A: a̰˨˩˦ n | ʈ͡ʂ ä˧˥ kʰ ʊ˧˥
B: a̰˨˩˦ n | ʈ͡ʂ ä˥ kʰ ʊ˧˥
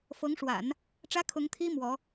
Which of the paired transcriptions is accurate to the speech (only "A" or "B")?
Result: B